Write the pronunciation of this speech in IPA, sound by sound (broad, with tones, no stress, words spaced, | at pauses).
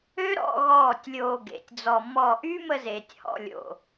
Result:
ø˦ɾɔ̰˧ ɣɔː˦˨tʲlʲoː˧ɡḛ˨tʲd͡zɔ˧ mɔ˦˨ ʔyː˦mə˧zeː˨tʲ hɔ̰˨lʲo̰˨